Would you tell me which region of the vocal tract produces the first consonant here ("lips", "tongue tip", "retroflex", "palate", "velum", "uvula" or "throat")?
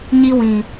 palate